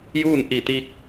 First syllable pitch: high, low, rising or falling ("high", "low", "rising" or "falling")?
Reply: falling